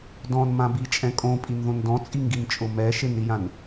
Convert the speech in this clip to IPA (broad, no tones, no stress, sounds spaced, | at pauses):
d ɔ̃ n m ã b i t͡ʃʼ ɛ̃ kʼ õ pʼ i n ð õ n d ɔ̃ t͡sʼ i ŋ ɡ i n t͡ʃʼ ʊ m ɛ ʃ ɪ n ɾ i j ã n